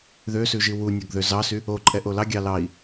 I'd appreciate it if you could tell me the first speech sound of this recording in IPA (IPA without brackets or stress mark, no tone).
ð